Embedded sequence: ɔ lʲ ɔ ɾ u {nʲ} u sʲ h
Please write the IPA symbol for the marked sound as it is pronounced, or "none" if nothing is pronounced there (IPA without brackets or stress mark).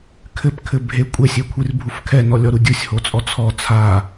dʲ